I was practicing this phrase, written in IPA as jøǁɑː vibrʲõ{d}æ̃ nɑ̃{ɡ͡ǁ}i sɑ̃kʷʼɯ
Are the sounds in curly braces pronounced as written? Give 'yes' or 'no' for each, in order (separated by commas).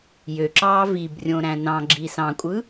no, yes